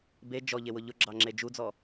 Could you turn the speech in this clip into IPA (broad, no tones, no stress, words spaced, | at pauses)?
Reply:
be d͡ʒɔʎewʊ ʎʊɡ͡ǁɑŋ͡ǁe d͡ʒud͡zɔ